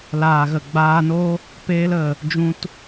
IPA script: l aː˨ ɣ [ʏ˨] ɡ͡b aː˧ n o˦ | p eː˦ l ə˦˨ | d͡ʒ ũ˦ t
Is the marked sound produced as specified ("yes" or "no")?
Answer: no